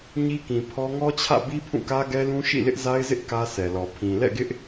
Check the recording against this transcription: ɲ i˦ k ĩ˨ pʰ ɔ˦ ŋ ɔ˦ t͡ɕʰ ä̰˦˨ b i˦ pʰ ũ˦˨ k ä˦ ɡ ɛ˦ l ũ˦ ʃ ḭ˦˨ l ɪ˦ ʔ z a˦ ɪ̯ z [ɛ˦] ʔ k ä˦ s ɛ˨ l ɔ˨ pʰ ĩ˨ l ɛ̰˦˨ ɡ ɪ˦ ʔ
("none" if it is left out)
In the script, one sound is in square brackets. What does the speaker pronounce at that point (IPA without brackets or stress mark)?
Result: ɪ˦